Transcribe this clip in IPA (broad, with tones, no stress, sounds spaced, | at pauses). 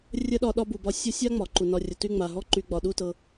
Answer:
rʲ ə˥ ɗ ɒ˦ ɗ ɒ˥ b u˨ b ɒ˦ sʲ ɤ˦ sʲ a˥ ŋ͡m ɒ˩ ǃ u˩ n ɒ˨ rʲ ə˩ t y˦ ŋ͡m a˩ ɦ ɔ˥ ǃ y˨ ɡ͡b ɒ˩ ɗ u˨ t ɤ˩